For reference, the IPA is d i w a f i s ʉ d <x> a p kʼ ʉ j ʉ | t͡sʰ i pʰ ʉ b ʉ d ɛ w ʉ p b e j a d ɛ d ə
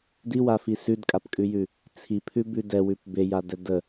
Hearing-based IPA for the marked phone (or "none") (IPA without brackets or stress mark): kʼ